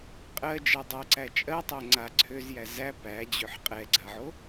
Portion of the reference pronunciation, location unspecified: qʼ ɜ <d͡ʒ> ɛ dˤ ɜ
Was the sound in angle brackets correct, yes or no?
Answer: yes